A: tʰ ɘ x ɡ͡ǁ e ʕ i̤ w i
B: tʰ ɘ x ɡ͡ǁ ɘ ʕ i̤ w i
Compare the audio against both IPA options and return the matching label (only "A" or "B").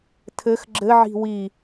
B